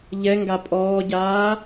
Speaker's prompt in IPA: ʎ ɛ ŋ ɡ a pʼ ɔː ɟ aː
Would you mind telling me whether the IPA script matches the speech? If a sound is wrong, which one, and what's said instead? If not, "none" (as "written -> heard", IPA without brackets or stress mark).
none